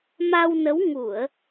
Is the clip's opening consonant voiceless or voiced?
voiced